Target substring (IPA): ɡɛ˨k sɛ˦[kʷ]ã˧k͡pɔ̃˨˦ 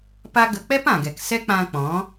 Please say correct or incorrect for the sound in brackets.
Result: incorrect: k͡p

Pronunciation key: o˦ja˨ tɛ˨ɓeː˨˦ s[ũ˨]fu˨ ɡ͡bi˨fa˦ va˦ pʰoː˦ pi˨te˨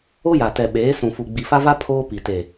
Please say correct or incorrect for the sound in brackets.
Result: correct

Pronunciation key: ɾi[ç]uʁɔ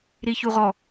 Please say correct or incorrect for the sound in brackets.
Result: correct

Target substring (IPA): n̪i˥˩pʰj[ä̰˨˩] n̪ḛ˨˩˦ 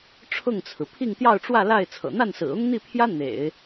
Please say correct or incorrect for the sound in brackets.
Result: incorrect: ä˥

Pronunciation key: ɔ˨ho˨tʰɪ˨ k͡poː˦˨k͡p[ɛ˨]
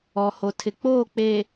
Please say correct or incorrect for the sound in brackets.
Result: incorrect: e˨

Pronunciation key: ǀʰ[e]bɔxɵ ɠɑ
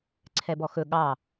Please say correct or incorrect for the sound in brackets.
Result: incorrect: ɛ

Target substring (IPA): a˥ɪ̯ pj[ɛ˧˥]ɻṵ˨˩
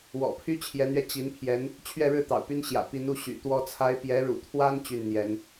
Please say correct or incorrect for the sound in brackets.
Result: correct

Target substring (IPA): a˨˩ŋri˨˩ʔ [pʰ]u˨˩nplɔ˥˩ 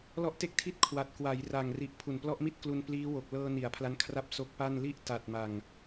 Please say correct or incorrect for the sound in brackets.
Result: correct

